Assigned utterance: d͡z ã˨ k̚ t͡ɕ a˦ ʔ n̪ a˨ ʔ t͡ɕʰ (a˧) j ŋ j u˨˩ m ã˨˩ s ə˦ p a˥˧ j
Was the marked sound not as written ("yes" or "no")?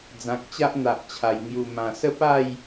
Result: yes